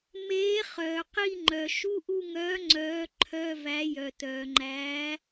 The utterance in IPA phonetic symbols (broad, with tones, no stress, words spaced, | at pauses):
meː˨˥ χœː˩qi˦˨ŋ͡ǃœ˩ ʃu˧˥˧ʔu˦˨ŋœː˨˥ ŋ͡ǀœː˨˥ǃʰœ˧˥˧ væ˨˥jœ˩tœː˩ŋ͡ǃæː˨˥